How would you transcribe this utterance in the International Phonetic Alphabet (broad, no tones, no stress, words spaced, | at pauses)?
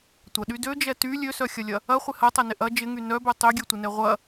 tʷɐɗy død͡ʒɛ ty lʲøsœxʲɐlʲɐ | ɐχʷɪ hɐtˤɛnɪ ʔɐ d͡ʒɪŋy nœbœ tˤøɡʲøtʷɪnɛ ʁʷɐ